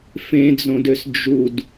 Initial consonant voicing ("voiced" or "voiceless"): voiceless